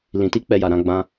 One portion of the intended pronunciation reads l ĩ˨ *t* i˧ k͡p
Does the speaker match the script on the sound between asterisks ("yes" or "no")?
yes